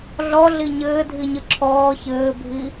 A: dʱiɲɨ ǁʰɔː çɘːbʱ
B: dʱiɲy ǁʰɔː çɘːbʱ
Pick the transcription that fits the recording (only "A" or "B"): A